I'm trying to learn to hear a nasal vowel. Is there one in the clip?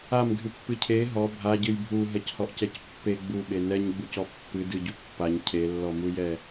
no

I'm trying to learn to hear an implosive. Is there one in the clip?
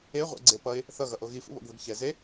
no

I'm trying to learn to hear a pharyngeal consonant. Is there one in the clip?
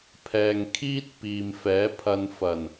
no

